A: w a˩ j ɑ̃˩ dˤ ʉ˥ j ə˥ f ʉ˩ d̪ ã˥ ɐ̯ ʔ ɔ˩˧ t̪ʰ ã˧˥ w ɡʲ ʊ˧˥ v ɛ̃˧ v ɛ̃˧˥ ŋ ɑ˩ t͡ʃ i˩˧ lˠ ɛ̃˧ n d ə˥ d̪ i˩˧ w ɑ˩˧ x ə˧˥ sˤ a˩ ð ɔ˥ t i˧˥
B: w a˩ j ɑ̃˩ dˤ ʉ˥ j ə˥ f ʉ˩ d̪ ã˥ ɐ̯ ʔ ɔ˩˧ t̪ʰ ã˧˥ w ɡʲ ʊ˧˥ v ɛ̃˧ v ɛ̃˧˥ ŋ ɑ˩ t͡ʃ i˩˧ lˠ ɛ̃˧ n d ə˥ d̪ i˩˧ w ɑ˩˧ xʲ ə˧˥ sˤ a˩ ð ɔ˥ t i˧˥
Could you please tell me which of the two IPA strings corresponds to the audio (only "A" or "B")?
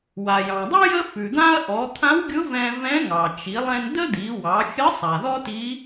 B